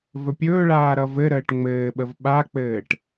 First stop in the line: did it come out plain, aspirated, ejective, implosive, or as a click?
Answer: plain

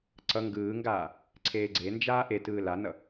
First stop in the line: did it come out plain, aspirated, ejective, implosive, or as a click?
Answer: click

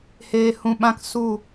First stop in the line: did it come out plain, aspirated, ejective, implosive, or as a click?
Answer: implosive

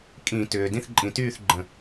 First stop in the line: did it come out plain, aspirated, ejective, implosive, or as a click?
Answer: ejective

